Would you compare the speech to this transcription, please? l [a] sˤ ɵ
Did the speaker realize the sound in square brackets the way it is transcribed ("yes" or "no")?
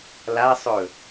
yes